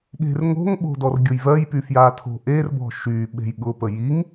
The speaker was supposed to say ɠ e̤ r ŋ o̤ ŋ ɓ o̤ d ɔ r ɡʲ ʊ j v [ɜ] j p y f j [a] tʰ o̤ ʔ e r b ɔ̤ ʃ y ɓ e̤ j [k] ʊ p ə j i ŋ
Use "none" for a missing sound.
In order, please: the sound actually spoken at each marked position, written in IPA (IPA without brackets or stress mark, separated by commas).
ɜ, a, ɠ